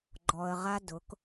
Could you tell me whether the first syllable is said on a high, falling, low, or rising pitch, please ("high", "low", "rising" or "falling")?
low